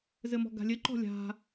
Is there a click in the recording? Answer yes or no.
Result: yes